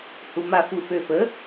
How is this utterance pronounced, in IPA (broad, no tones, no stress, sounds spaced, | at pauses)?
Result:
h u m a f u f ø f ə